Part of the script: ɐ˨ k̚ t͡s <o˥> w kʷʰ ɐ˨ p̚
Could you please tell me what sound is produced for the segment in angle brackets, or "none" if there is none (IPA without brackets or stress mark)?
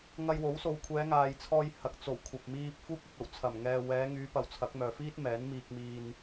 o˨˩